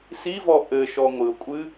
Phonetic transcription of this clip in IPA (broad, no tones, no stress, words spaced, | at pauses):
sivɔ ʔɘʃɔ ŋʷɨʊ̯kʷʼɨ